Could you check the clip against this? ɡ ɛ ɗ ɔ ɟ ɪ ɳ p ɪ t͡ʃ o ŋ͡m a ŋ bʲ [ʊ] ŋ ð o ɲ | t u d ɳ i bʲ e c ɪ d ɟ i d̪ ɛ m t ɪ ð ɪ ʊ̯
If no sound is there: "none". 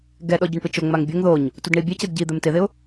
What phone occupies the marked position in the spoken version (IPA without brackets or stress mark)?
ʊ